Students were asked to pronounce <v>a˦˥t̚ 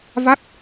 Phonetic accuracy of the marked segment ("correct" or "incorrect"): correct